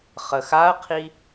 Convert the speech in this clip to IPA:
χ ə x a ɐ̯ qʰ i

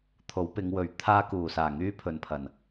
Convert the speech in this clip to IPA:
t̪ʰ o˨˥ w p ɪ˨˧ ŋ w ɵ˨ ɥ t̪ʰ aː˧ k uː˨˩ s aː˨˩ ŋ yː˧ pʰ ɵ˨ n pʰ ɐ˨˩ n

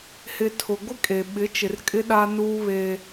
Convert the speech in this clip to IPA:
h ɪ˨ tʰ ʊ˨ ɡʷ ɪ˦ kʼ e˨ ɓ ɪ˨˦ t͡ʃ ɪ˨ r kʼ ɪ˦ ɗ a˦ n uː˦ β e˦

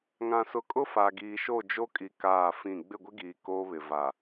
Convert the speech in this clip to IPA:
ŋ ã˨ s ʊ˨ kʼ ʊ˦ f a˨ ɡ iː˨ ʃ o˦˨ d͡ʒ o˦ kʼ i˨ k aː˦˨ f ĩ˦˨ ɡ͡b ɪ˦˨ ɡʷ ɪ˦ ɡ iː˨ k oː˦ β ɪ˨ v a˨

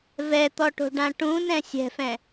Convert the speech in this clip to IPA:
v ɛ t̪ ɔ ʈ o̤ ɖ ã ʈ ũ n ɛ̃ sʲ ɛ̤ f ɛ̃

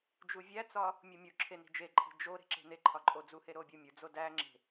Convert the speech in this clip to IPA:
d͡ʒ u vʲ æ t͡s ɒ | mʲ u mʲ u ǁʰ e n i̤ d͡ʒ e ǃʼ i̤ d͡ʒ o ɾ e̤ ǁ e̤ n e ǃʰ ɒ ǃʼ o d͡z u h e ɾ o bʲ u mʲ u d͡z o d æ ŋ͡ǁ e̤

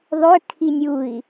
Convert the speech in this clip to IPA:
ðˤ ʏ kʰ i nʲ u i̯

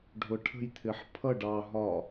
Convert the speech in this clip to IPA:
ɖʱ ʊ ʈʰ ə̤ j t̪ʰ ɪ ħ pʰ ʌ ɖ ɑ ɦ ɒ

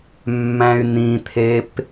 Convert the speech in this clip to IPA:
mː æ̃ y̯ n ĩ t̪ʰ e p

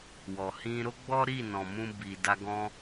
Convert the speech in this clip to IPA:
w ɔ˨ h ĩ˧ ɾ o˦ ɡ͡b ɔ˦ ɾ i˦˨ n ɔ̃˨ m ũ˧ b i˨ d a˧ ɡ ɔ̃˧

